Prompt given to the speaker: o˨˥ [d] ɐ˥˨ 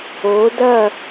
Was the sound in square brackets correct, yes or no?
yes